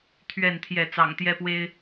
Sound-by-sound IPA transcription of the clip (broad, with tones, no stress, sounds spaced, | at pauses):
t̪ʰ ɥ ɛ˥˨ n t̪ʰ j ɛ˥˨ t͡s ɑ̰˨˩ ŋ t̪ j ɛ˦ p w e˦ ɪ̯